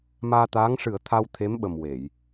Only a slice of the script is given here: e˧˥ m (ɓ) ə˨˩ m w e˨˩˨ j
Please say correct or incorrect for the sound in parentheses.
correct